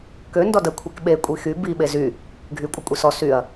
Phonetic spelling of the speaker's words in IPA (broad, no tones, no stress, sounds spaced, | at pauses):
k ø n d ɔ d ə kʷʰ i k ɓ e kʷʼ i x y b i ɓ e z y | ɡʱ y kʷʼ ə kʷʼ i s ɔ s y ɐ̯